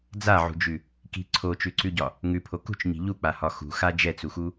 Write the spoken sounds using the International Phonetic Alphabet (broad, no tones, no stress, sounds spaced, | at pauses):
d͡z a ʕ ṳ d͡ʒ ʉ | k i̤ ǀʰ o t͡ʃ ʉ ǀ ʉ ɟ ɒ | ŋ ʉ pʰ o k ṳ t͡ʃ ɲ i̤ ʎ u k͡p a h ɒ x ṳ x a d͡ʒ ɛ t͡s u x u